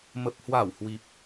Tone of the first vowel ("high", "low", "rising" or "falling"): low